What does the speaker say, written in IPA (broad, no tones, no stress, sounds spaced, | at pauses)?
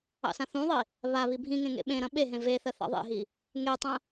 ɑ̰ s ã θ ũ ðˤ i | β a β i bʱ ĩ ŋ ẽ ŋ ḛ ɓ ẽ ɾ ɐ̃ ɓ e ɦ ẽ v e θ ɜ θ ɑ̰ ðˤ ḛ ɦ i | ŋ e tˤ ɐ̃